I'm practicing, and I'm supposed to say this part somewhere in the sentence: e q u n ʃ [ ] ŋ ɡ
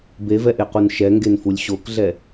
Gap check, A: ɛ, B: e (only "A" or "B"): A